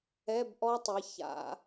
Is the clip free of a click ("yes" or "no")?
yes